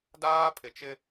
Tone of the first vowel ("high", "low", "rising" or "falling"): high